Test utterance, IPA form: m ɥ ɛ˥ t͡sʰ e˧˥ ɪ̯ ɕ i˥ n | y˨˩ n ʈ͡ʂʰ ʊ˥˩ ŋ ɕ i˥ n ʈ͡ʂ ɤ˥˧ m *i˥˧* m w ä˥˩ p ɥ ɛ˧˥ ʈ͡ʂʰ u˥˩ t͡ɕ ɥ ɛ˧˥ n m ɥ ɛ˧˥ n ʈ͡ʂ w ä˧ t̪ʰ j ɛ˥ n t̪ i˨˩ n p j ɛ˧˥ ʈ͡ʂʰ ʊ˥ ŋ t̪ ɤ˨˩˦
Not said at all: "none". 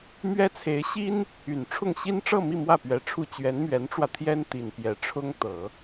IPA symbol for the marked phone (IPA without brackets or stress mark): i˥˧